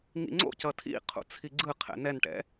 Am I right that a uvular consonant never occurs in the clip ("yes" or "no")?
no